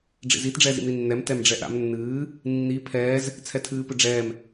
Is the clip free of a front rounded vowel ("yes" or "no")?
yes